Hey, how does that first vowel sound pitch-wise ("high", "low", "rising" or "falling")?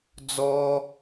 high